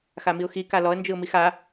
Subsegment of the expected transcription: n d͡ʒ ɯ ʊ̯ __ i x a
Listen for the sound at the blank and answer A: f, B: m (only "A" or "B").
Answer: B